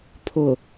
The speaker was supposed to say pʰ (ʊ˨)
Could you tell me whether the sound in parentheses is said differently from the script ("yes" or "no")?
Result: no